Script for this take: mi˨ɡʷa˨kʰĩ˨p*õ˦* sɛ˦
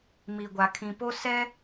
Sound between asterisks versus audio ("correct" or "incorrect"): incorrect